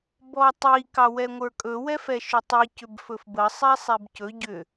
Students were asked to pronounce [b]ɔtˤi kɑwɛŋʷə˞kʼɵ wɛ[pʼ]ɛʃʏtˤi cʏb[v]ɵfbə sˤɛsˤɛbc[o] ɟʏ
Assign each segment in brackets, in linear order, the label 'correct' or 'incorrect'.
correct, incorrect, incorrect, incorrect

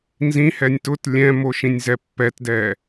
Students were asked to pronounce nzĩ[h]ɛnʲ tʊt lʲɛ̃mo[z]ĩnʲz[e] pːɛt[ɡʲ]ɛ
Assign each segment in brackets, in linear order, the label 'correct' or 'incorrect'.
correct, incorrect, incorrect, incorrect

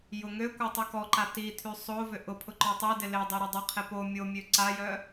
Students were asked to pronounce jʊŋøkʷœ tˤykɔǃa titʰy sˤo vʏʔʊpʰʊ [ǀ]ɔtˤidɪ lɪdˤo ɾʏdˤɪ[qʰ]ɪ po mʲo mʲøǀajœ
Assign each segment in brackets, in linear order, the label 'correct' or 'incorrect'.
incorrect, correct

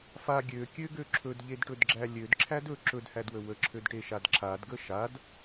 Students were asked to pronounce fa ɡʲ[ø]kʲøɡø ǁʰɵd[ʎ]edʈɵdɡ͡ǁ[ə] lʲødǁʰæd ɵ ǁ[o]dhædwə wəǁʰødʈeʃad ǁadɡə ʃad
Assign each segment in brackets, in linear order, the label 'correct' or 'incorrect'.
correct, correct, incorrect, incorrect

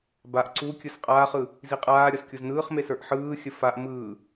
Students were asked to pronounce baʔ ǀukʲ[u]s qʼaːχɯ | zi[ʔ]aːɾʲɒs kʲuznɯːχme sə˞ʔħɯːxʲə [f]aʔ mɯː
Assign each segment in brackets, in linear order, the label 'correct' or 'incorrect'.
incorrect, incorrect, correct

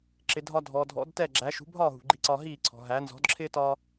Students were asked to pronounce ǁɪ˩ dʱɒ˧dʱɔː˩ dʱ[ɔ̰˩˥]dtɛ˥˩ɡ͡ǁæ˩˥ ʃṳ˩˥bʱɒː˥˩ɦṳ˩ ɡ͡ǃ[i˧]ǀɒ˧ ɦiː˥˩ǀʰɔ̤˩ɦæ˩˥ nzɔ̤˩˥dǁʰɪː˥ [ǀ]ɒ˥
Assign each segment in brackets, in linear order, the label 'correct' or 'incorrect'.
correct, correct, incorrect

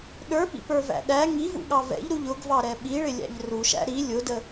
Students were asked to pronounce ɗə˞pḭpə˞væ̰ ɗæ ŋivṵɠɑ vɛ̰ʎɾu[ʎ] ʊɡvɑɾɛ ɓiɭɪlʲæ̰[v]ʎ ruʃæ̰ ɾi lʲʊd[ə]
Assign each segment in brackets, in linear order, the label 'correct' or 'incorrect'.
correct, incorrect, correct

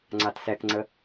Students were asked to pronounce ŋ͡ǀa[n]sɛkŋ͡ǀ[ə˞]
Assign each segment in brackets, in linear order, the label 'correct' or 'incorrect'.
incorrect, incorrect

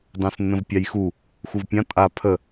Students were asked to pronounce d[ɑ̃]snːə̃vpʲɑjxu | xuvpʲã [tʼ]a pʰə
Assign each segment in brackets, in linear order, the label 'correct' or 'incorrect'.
correct, correct

